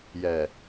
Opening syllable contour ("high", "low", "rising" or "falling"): low